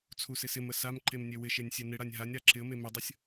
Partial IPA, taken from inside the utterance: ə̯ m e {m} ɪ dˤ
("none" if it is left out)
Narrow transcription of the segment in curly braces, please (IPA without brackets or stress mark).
m